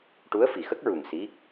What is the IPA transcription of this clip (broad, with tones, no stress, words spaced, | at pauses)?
ʈu˧˥ə̯fi˨˩xə˦˥k̚ɹu˨˩ŋ si˧˥